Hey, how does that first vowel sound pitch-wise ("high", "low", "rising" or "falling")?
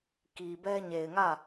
low